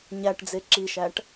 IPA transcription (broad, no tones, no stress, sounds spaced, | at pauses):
ɲ æ ʈ d͡z e ǁ i ʃ æ ʈ